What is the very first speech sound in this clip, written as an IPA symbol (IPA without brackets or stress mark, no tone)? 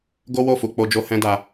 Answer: ɡ